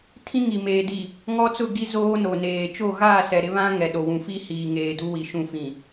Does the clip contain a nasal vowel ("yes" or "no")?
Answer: yes